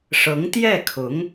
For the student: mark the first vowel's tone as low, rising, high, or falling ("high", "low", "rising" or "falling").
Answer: rising